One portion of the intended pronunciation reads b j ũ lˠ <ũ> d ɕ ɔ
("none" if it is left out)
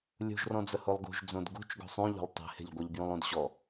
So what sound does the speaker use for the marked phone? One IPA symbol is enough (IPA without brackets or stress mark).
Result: ũ